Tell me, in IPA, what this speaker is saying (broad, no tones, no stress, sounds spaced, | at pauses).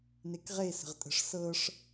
n e k ʁ e s ə̤ ʁ tʼ ə̤ ʂ s ɤ ʂ